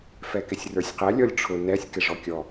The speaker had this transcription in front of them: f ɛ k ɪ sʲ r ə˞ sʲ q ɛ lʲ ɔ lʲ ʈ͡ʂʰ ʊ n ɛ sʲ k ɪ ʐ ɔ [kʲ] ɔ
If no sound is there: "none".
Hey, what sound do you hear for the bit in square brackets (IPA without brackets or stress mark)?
kʲ